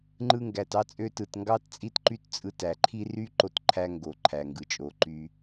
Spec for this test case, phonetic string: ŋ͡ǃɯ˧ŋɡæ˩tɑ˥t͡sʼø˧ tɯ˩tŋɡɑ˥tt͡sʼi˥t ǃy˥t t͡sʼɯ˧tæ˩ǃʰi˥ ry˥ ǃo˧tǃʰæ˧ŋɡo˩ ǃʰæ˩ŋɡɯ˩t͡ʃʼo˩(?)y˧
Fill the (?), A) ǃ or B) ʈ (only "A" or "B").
A